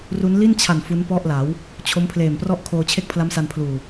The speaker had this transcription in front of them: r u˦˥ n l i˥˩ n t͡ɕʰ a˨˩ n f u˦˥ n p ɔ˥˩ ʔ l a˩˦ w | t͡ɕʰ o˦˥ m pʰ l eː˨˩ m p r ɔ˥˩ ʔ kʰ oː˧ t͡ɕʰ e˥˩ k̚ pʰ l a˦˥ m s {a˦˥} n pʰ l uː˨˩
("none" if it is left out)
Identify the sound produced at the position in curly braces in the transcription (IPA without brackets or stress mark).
a˧